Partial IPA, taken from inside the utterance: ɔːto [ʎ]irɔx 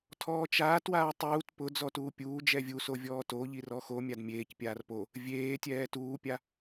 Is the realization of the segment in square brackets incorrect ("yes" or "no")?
no